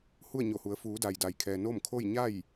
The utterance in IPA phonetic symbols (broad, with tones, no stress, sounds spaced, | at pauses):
h u˥˨ ə̯ ɲ o˧˩ h u˩˧ ə̯ f uː˩˧ d a˩ j d a˩ j kʰ ɛː˩ n o˥˨ m kʰ o˥˨ j ɲ a˥˨ j